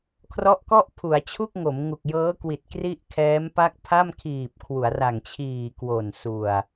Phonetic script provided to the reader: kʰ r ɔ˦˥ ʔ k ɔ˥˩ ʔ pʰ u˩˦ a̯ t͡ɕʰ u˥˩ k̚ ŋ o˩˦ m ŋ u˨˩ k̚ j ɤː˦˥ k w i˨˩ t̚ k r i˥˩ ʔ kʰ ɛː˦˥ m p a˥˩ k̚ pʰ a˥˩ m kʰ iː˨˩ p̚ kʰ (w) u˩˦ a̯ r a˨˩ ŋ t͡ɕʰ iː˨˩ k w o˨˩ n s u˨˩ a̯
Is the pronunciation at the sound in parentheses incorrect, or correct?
correct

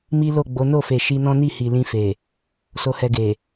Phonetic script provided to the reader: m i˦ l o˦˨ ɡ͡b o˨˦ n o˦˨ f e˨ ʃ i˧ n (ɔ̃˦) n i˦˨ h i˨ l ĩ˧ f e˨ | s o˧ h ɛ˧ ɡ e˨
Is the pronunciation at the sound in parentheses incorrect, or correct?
correct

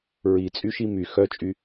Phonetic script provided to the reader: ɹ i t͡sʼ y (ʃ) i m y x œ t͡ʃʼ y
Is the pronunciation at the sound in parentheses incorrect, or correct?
correct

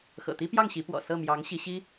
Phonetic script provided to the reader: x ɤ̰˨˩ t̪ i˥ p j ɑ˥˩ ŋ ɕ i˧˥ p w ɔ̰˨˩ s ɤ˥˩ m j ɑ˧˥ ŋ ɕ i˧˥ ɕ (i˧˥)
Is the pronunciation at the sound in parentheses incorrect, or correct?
incorrect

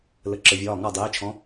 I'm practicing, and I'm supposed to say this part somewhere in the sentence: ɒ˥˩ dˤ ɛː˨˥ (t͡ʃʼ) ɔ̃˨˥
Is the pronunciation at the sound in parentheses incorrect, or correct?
incorrect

